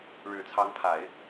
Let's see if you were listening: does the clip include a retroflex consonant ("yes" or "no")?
yes